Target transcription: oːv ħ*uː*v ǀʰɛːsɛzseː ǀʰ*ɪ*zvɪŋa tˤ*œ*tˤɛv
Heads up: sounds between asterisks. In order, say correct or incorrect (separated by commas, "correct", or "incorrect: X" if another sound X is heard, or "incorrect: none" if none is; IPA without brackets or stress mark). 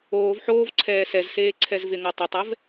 incorrect: oː, incorrect: ɛ, correct